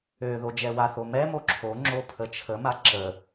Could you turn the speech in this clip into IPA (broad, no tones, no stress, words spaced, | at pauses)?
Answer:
ø ðod͡ʒɛwaθo mɛmo ǁʰo ŋ͡ǁopʰət͡ʃʰəma ǁə